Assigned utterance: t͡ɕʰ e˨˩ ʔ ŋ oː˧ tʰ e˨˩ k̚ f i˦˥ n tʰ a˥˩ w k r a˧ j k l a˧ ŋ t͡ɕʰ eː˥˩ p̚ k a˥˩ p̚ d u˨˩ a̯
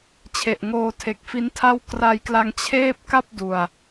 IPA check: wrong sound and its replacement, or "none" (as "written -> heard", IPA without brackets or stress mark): none